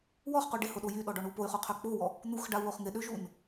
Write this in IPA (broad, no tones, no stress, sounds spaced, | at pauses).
w ɔ χ q u ɖ ɪ h ʊ ɗ o j y ɗ ɔ ɖ ɔ ɳ u p o y̯ χ u qʰ ø k͡p o w ɔ | n̪ u x ɖ a u̯ w o χ ŋ ɪ ɗ ø ʒ u n